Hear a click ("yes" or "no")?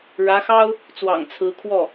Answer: no